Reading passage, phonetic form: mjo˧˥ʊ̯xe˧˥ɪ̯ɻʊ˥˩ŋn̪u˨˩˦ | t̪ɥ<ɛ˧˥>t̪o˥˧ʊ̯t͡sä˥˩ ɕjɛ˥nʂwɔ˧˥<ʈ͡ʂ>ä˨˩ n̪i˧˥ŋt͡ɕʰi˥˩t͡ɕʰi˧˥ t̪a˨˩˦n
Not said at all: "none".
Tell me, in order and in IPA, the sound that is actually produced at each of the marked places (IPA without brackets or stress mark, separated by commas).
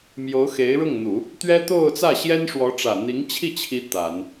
ɛ˥, ʈ͡ʂ